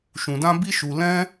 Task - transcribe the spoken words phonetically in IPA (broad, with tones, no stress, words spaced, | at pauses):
ʃũ˧dã˦ bi˦ʃu˧ lɛ̃˦